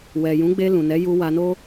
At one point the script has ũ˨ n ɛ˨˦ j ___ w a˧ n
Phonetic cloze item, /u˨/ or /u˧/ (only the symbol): u˧